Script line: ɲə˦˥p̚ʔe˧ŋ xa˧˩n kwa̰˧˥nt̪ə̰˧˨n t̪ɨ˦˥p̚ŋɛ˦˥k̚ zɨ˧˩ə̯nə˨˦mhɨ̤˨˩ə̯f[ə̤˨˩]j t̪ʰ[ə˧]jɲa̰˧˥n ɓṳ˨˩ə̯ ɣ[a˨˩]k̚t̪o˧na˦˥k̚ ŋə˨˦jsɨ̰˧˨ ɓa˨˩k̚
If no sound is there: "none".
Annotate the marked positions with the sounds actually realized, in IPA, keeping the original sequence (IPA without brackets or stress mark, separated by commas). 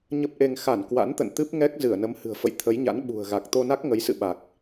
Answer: ə̰˧˨, ə˨˦, a˨˩